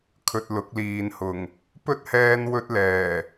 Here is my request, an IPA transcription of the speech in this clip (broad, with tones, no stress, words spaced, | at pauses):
kʰɵ˨t̚ lʊ˨˥k̚liː˨nhʊ˨˩ŋ | pɵ˥t̚hɛː˧n wɵ˧t̚lɛː˨˩